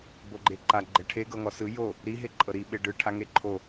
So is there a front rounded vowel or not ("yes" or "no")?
no